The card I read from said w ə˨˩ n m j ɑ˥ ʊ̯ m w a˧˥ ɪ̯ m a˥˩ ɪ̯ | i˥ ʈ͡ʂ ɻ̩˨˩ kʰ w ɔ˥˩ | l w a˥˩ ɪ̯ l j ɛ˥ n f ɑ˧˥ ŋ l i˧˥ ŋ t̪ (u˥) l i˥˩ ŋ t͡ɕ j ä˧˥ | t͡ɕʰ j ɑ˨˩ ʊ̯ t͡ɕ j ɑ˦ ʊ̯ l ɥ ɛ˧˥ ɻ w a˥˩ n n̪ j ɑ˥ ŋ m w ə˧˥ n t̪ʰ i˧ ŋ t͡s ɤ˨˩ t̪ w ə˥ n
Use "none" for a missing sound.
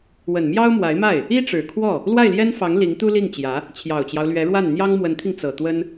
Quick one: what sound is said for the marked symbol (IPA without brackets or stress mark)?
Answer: u˥